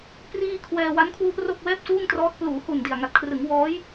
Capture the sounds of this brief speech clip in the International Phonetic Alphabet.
p r iː˧ kʰ w ɛː˧ w a˦˥ n kʰ w u˦˥ ʔ r o˥˩ k̚ w ɛː˥˩ p̚ s uː˥˩ ŋ t r ɔː˦˥ t̚ p l uː˩˦ h u˨˩ n d i˨˩ a̯ ŋ a˨˩ t̚ kʰ r ɯ˩˦ ŋ w ɔː˦˥ j

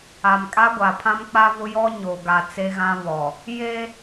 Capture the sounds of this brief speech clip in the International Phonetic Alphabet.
a˨ m kʼ a˦ ɡʷ a˨ pʰ ã˦ m k͡p a˦ v ʊ˦ j ɔ˦ ɲ o˨ ɡ a˨ t͡s e˦ ɣ ã˦ β ɔ˨ | j e˦

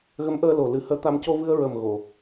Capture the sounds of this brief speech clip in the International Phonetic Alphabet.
ɣ ə˧˥ m ʔ əː˧ l o˨˩ l ɨ˨˩˦ h əː˧˥ t̪ a˧ m c o˧ v ɨ˧ ə̯ ɹ ə˨˩ m ɣ o˨˩˨

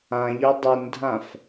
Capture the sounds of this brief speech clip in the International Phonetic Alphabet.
ã ʎ œ dˤ u n dʱ ã f

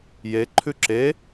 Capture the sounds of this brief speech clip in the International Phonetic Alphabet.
j e ǃʰ ʉ ǁ e

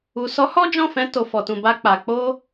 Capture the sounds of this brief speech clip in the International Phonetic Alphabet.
u˨ s ɔ˨˦ h ɔ˦ d͡ʒ ɔ̃˦˨ f ɛ̃˧ t o˨ f ɔ˨ t ũ˨ b a˧ k͡p a˨ k͡p o˧

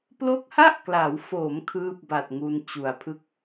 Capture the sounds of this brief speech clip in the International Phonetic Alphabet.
p l o˦˥ k̚ h a˥˩ ʔ k l a˩˦ w f oː˩˦ m kʰ ɯː˥˩ p̚ b a˨˩ t̚ ŋ u˧ n t͡ɕ u˩˦ a̯ pʰ ɯ˥˩ k̚

